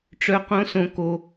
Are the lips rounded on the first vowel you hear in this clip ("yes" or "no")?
yes